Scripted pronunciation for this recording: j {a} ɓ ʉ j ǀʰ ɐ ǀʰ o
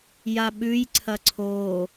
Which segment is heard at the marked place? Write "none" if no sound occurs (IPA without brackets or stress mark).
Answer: a